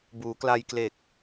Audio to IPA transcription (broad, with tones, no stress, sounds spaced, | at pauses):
b uː˩˦ k l a˧ j k l e˨˩ k̚